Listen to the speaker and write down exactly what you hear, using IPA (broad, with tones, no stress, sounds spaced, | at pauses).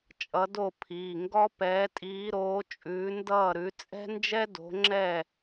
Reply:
t͡ʃʼ ʌ˨˦ d o˥˩ pʰ iː˩˧˩ ŋ ɡ ɔ˥ p ɛː˨˦ tʼ iː˨˦ ɾ oː˨˦ t͡ʃʼ ʉː˨˦ n d ʌː˥˩ ɾ ʉ˨˦ t͡sʼ ɛ̤˥ n d͡ʒ ɛ˥ d o̤˨˦ ŋ͡ǁ ɛː˥˩